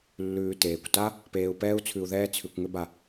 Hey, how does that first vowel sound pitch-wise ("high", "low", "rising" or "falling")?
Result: low